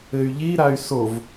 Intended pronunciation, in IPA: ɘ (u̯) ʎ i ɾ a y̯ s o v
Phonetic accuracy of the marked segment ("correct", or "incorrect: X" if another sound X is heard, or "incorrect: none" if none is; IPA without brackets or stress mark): incorrect: y̯